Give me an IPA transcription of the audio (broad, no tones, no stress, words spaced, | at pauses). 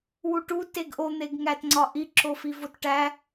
wuʈu teɡʔon̪eɡ ŋætŋ͡ǀɒʔi ǁofivotʈæ